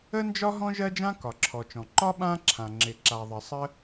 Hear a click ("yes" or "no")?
yes